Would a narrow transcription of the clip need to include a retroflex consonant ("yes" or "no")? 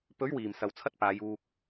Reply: no